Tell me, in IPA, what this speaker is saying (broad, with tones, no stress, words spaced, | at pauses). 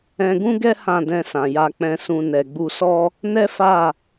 ɛ̃˧ɡũ˦ɡɛ˦ hã˦˨dɛ̃˧ sã˨ja˧k͡pɛ̃˧sũ˧ nɛ˨ɡ͡bu˧sɔ˦ | nɛ˦fa˦˨